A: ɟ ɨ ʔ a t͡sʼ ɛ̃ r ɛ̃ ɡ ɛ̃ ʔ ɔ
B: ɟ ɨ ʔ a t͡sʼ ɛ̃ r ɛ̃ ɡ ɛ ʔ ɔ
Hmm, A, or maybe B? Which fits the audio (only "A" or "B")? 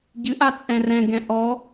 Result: A